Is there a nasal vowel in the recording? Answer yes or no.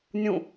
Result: yes